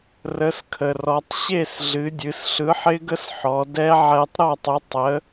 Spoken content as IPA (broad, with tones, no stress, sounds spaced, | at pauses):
r ə˨˥ s kʰ ə˩ r ɔ˩˧ tˤ ɕ e˥˨ s ɮ ɨ˩˧ dʲ ɨ˩˧ s ɬ ɯ˨˥ ħ ɪ˦˥ ɡ ə˦˥ s ħ ɔ˩˧ d ɛ˦˥ ʕ ɛ˧ tˤ ɾ ɔ˥˨ tˤ ɯ˨˥ tˤ ə˨˥